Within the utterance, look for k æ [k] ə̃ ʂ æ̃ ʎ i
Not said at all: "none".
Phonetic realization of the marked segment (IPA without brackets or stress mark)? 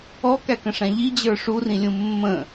k